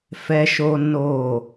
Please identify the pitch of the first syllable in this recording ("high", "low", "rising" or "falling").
high